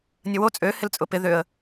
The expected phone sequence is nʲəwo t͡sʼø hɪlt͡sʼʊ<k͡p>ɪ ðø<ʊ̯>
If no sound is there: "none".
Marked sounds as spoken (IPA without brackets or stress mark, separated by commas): p, ə̯